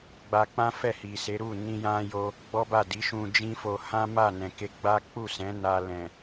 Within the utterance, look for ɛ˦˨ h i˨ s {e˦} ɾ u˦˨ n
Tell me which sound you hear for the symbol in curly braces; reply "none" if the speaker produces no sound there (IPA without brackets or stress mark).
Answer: e˨˦